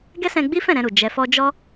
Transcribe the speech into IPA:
ɡɛ˦sɛ̃˧ɡ͡bi˦fɛ̃˦˨ ɾɛ̃˧ɾu˨ d͡ʒɛ˧fɔ˦ d͡ʒɔ˦

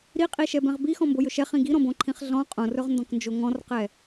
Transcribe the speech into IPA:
ɾiqʼiʃɛbɛ̃ʁ bixɔ̃mbojɵ ʃɛχĩ ɡiɾɔ̃bõǃʰĩχ ɮɔ̃ qʼõrɵʁndɔ̃knd͡ʒo ŋɔ̃rqɛ

